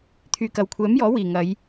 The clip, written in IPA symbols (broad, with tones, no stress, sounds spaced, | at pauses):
t̪ʰ yː˨ k ɐ˨ w kʷʰ ɛː˨˥ m j ɔː˨˥ w iː˨˩ ŋ ɐ˨˧ j